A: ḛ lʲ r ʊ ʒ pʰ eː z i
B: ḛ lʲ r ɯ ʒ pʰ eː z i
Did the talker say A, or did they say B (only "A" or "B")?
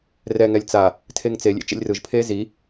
B